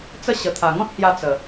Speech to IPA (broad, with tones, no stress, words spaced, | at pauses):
t͡sə˥˧ ɕə˨˩t̪ʰa˨˩ŋɔ̃˦t̚hja˧ t͡sə˨˩